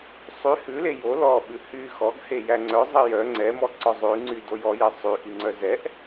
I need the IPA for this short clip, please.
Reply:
sˤ y h ʉ l e j o l ɔ ɓ ʉ h y x ɔ ɡ h e j æ ŋ͡ǀ œ zˤ i j œ ŋ͡ǀ ɛ m ɔ ǀ ɔ zˤ ʉ ŋ͡ǀ y d o j ɔ j ɛ sˤ y ʔ i ŋ͡ǀ œ z ɛ ʔ

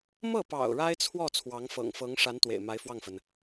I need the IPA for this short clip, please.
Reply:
m ɤ˥˩ p ɑ̰˨˩ ʊ̯ ɻ a˥ ɪ̯ t͡sʰ w ɔ˥˩ t͡sʰ w ɑ˧˥ ŋ f ɤ̰˨˩ ŋ f ɤ˧˥ ŋ ʂ a˧˥ n t̪ w ḛ˨˩ ɪ̯ m a˧˥ ɪ̯ f w ɑ˥˩ ŋ f ə˩ n

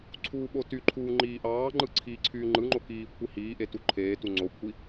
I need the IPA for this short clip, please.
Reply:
ǀʰ uː ɓ o t y ǃʰ uː ŋ͡ǃ iː ʔ ɑː ŋ͡ǃ ɯ ǀʰ iː ǀʰ yː ŋ͡ǃ ɯ ŋ͡ǃ o k iː kʷʰ i h iː ʔ e t u ǃʰ eː t u ŋ͡ǀ o kʷʰ i

